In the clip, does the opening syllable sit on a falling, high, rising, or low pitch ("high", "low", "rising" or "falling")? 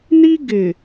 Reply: high